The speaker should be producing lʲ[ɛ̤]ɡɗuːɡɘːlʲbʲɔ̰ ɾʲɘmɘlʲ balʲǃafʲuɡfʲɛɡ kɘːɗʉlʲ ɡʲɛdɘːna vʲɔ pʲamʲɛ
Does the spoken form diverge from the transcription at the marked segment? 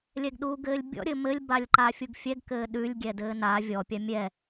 yes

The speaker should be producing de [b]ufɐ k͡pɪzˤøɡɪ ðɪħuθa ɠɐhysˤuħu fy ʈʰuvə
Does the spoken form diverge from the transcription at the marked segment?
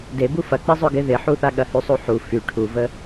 no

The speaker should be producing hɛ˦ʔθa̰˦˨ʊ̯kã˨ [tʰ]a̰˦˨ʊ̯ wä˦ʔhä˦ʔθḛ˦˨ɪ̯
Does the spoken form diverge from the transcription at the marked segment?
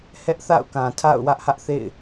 no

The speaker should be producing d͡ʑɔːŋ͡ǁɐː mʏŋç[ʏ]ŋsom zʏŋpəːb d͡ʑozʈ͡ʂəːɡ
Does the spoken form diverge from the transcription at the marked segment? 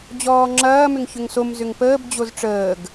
no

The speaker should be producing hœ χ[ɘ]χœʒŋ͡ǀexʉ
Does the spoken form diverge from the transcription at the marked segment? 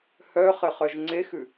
no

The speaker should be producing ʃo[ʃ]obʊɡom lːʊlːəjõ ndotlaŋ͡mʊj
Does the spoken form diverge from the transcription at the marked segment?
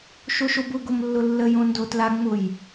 no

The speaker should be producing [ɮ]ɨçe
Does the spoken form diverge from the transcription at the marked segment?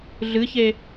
no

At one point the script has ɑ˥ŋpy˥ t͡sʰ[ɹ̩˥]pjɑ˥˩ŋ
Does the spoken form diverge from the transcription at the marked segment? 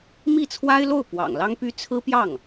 no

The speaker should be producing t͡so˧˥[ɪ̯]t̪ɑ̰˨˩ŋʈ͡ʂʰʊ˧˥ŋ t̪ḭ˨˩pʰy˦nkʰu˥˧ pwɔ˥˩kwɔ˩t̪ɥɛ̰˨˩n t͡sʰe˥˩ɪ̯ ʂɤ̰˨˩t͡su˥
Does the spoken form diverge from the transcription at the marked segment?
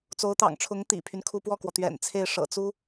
yes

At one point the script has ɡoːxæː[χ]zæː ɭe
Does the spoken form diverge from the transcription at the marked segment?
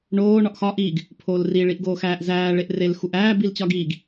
yes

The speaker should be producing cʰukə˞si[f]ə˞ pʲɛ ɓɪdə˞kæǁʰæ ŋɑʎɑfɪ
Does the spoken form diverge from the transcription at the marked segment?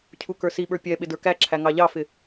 yes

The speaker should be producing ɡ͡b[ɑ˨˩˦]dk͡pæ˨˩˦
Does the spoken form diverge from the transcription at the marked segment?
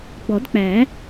yes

